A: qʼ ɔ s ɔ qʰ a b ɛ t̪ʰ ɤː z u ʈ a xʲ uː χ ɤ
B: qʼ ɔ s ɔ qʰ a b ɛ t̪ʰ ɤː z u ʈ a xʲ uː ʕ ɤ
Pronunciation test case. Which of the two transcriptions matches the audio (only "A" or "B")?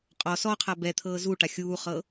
A